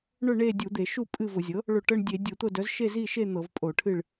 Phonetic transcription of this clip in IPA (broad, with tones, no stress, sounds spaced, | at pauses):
ɳ ʊ˦˨ ɳ e˦˨ dʲ u˧˩˧ d̪ e˧˩˧ ʃ u˦˨ pʼ ɨ˦˨ v ʊ˧˩˧ zʲ ɤ˩˥ | ɭ o˧˩˧ ʈ ɤ˦˨ ɳ dʲ e˧˩˧ dʲ u˧˩˧ t̪ ʊ˦˨ d œ˩˥ z ʃ e˦˨ z i˦˨ ʃ e˦˨ n̪ ɤ˧˩˧ v pʼ o˧˩˧ ʈʰ ɨ˦˨ ɭ